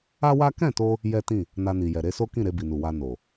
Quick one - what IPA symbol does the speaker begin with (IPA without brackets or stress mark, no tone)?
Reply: a